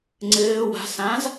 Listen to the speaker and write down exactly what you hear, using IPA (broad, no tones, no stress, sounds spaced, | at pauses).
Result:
ŋ͡ǀ ɘː w a̤ s ã z